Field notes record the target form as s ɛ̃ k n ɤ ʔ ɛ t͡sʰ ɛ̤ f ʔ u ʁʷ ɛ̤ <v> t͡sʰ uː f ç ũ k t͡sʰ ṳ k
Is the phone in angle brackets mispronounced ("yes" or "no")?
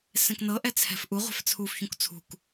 yes